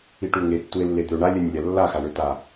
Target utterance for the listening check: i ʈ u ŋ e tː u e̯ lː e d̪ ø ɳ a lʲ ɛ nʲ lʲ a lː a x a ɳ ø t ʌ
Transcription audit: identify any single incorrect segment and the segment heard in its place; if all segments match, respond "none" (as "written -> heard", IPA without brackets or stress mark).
ʌ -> a